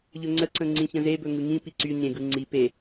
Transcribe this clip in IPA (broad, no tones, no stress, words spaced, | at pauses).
ʎɵŋ͡ǀəǀə̃ ŋ͡ǀĩçə̃zebɵ ŋɯŋĩpi ǀy ɲẽɡɯ ŋ͡ǀi pe